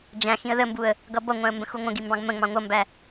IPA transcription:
d͡ʒæ̃ xĩə̯ðəmbuə̯ | ɡʌbʌŋʷæ̃ə̯ mbə̃xuŋʷə̃ɡi mbɑ̃ɡmə̃ŋ͡mɑ̃ ŋʷʌmbæ

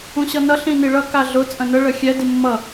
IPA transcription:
ũɕʌnʌ ɬĩniɭʌ kaɮʊ t͡sʼə̃nə ɭəxʲɛ dimːʌ

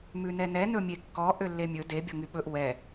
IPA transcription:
mʉnɛnɛ nɵmʲekːɔ ʔølːemʲɵ de bʲɔŋyɓɵʔ wɛ

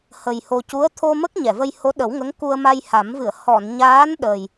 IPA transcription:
hə˨˩j ho˧ cu˧˥ə̯ t̪ʰo˧mə˦˥k̚ ɲɛ˨˩˨və˧j ho˧˥ɗə˨˩˦wŋə˧˥ŋ ku˧ə̯ma˧jha˨˩˦mvɨ˨˩˨ə̯ hɔ˨˩˨nɲaː˧˥nɗə˨˩j

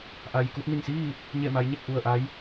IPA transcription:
ʔa˩jku˧t̚ni˧˩ŋsiː˥˨ | ɲe˧˩ma˩˧j ɲe˥˨k̚ʔu˧˩ə̯ ʔa˧˥j

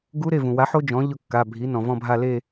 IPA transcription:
ɡu˧˥ɾe˩˧˩vũ˩wa˩˥ ħo˥d͡ʒɔ̃˩˥ ʎʊ˦˨kːa˩˧˩bʱi˩˥ nɔ̃˩vɔ̃˦˨bʱa˦˨ le˦˨

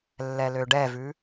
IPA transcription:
lːɛløɖɛvʉ

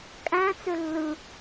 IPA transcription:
kʼæ̃t͡sø lːɯ

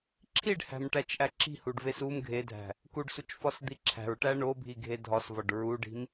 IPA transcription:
ǁʰiɖhæ̤mʈæt͡ʃʔæ ǁi̤huɖves um ɡʱedʱæ̤ | kuɖsut͡ʃfɒsd̪i ǁʰæ̤ɹʈæ ɳobʱiɡʱe dʱɒsvɒɖ ɹuɖi̤m

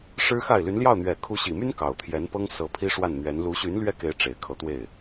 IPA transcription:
ʂɻ̩˥xa˥˩ɪ̯ ly˧˥nljɑ˥˩ʊ̯ n̪ɥɛ˨˩kʰu˧˥ɕi˨˩my˥n kɑ˨˩ʊ̯t̪ʰjɛ˧˥npɤ˥ŋ sɤ˧˥pʰi˥ ʂwa˥˩nn̪ɥɛ˧˥n lu˧˥ɕy˧˥n lɥɛ˥ke˧˥ɪ̯ ʈ͡ʂe˨˩ɪ̯kʰɤ˧˥t̪we˥˩ɪ̯

